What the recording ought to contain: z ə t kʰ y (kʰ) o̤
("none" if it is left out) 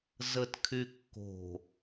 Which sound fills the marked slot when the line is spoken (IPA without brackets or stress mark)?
kː